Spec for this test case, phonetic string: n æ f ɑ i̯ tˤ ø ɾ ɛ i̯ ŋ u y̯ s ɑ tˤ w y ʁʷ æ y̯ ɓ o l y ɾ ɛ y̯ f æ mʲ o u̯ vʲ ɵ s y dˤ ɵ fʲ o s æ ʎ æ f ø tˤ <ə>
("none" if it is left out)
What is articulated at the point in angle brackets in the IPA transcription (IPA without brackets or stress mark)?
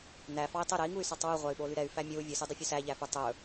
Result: ɵ